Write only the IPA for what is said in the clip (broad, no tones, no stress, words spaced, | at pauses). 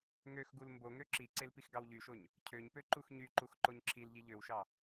ŋøxɡul mbo ŋøǁiǀel pixɡɑwʎyʃoɲ | cʰøɲpø ǃuxɲyǃux ǃoɲǁʰilʎi ʎøwʃɑ